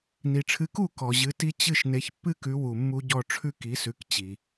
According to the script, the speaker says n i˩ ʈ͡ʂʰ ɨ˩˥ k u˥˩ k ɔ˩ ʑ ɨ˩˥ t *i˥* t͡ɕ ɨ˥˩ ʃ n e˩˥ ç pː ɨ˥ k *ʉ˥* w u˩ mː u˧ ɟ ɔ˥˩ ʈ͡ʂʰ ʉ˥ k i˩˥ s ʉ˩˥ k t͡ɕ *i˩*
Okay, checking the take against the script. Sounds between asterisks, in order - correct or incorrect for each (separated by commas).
correct, incorrect, correct